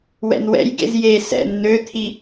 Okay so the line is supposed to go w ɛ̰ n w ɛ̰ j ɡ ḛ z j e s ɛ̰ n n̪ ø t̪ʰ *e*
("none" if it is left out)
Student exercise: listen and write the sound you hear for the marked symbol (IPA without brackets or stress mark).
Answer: i